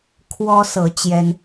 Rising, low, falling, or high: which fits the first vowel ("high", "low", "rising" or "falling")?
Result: high